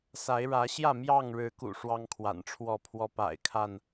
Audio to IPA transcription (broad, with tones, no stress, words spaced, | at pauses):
sa˨˦ɪ̯ɻä˨˦ɕjä˥˨ mjɑ˥˨ŋɻɻ̩˨˦kṵ˨˩ ʂwɑ˦ŋkʰwa̰˨˩nʈ͡ʂʰwɔ˥˨pʰwɔ˦ pa̰˨˩ɪ̯kʰa˥˨n